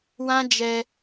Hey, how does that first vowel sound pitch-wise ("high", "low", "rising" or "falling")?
high